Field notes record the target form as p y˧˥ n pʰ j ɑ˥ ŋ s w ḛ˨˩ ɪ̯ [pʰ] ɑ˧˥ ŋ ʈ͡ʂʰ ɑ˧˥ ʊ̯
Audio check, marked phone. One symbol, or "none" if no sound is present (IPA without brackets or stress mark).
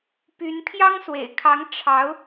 kʰ